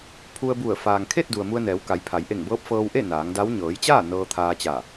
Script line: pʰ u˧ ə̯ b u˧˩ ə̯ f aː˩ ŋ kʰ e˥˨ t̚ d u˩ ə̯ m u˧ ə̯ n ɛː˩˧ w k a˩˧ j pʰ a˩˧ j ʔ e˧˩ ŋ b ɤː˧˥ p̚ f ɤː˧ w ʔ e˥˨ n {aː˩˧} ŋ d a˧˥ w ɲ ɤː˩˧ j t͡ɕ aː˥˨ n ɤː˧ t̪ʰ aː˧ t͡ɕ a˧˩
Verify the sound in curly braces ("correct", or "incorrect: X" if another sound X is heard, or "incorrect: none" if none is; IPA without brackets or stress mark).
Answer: correct